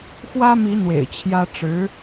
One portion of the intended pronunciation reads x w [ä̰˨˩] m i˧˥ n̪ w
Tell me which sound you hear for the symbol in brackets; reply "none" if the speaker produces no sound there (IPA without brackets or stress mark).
ä˥